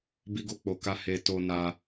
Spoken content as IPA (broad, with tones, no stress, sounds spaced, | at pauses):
b i˧ ɡ o˧ k͡p o˨ k a˧ h e˨ t o˧ n a˧